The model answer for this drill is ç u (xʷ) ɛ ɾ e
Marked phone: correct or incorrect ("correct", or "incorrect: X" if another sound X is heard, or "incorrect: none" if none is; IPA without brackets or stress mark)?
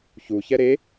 incorrect: ç